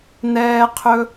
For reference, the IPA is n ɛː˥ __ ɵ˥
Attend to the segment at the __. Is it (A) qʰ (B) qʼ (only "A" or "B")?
A